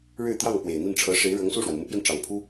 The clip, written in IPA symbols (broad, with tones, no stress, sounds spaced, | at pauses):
ɻ ɻ̩˥˧ t̪ j ɑ˥˩ ŋ p w e˨˩ ɪ̯ n̪ i˥˩ n ʈ͡ʂʰ ɤ˧˥ ʂ e˧˥ ɪ̯ ɻ ɤ˧˥ ŋ s u˥˩ ʂ w a˩ n m u˧˥ p j ɛ˧ n ʈ͡ʂ ɑ˨˩ ŋ pʰ u˥